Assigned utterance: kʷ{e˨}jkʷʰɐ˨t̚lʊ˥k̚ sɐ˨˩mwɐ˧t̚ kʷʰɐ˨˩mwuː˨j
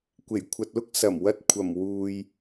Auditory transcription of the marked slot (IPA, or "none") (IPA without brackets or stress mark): e˨˩